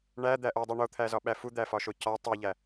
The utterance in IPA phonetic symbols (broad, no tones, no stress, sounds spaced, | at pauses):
ɳ æ d̪ æ ʔ o dˤ i ɳ o t̪ʰ æ z ɒ ɓ æ f u d̪ æ f ɒ ʃ o c ɒ tˤ i ʎ æ